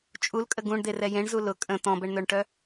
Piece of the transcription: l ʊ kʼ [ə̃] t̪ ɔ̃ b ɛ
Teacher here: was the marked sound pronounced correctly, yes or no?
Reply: yes